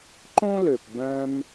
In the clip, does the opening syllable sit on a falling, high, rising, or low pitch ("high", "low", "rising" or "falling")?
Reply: high